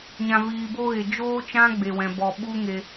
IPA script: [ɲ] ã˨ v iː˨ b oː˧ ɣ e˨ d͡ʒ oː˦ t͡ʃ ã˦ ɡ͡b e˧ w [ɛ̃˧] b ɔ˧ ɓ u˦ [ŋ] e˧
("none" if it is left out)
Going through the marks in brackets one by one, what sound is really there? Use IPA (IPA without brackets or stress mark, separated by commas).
ɲ, ɛ̃˧, ŋ